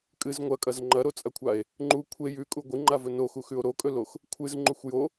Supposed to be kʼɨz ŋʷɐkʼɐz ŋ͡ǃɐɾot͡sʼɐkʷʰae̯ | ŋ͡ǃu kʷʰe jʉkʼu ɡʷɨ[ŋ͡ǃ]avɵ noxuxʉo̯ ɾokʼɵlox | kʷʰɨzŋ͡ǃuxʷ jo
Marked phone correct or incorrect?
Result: correct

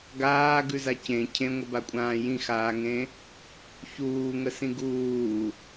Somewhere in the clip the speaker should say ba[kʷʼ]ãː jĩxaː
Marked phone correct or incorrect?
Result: correct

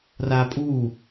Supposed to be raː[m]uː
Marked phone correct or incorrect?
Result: incorrect: pʼ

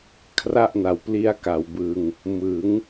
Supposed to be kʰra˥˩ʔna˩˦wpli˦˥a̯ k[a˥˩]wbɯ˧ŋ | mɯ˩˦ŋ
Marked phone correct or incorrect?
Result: incorrect: a˩˦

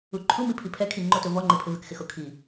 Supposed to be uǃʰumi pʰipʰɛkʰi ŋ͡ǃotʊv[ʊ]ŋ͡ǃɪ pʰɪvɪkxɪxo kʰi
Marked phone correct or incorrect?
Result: incorrect: ɔ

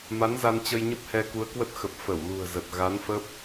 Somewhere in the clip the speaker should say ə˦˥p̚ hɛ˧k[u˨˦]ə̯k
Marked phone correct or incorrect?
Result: correct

